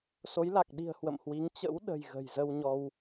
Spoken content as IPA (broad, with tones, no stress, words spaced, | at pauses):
so˨˦j la˨˩k̚ɗi̤˨˩ə̯ hwə̰˧˨mhwi˨˦ŋ t͡ɕə̰˧˥wɗə̤˨˩j ɣə̤˨˩jzə˧wɲɔ˧w